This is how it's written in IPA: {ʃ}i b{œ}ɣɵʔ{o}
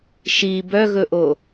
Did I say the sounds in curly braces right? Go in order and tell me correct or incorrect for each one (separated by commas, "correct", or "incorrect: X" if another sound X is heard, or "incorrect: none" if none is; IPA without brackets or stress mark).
correct, correct, correct